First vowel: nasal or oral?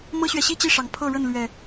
oral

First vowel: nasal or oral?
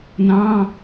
nasal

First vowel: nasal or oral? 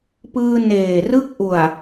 oral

